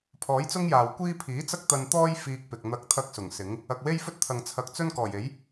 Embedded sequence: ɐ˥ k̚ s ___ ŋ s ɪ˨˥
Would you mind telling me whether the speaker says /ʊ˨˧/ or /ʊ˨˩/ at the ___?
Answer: ʊ˨˩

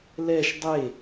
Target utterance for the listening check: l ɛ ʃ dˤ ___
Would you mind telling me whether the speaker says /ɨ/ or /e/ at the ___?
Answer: e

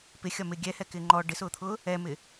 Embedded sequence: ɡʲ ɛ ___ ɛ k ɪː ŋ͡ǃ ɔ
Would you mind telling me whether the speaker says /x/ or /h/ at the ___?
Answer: h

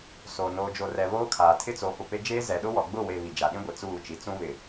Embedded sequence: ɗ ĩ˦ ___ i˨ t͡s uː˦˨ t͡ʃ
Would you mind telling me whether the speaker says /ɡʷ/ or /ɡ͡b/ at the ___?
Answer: ɡʷ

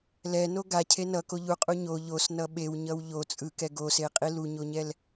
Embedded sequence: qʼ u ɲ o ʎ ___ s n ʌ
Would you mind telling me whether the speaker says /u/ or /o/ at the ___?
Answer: o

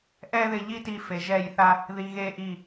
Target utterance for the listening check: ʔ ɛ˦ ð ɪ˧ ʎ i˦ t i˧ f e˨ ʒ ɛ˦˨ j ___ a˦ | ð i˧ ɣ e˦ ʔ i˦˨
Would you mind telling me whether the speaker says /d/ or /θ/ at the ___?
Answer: θ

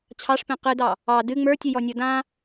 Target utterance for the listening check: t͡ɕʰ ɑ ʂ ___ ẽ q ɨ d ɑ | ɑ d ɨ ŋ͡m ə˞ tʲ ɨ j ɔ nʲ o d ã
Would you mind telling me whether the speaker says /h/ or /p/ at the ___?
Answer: p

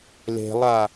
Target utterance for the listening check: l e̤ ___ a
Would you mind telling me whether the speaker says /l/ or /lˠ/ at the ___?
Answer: lˠ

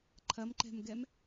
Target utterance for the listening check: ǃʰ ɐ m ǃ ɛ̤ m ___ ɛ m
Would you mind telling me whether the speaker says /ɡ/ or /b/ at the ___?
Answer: ɡ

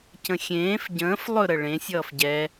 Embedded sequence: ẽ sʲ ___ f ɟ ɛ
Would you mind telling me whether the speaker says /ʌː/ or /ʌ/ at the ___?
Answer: ʌː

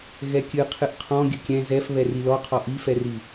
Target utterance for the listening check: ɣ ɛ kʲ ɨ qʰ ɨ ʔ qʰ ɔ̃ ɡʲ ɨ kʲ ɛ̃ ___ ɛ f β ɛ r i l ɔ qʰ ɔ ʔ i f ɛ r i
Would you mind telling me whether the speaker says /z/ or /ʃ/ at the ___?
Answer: z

